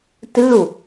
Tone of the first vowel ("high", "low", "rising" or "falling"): falling